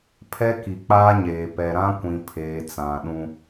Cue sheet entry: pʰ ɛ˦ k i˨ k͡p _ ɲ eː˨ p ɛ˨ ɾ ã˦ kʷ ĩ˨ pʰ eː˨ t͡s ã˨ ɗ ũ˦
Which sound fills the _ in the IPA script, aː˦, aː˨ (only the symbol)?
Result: aː˦